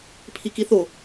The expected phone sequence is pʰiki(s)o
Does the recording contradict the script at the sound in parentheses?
yes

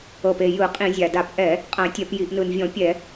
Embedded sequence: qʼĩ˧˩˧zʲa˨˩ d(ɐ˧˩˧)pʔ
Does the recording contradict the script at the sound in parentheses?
yes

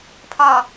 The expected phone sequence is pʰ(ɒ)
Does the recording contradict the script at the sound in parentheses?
no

